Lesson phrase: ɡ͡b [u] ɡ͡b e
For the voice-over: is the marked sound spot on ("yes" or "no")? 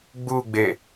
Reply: yes